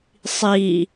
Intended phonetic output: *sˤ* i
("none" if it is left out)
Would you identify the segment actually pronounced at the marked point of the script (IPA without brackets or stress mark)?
sˤ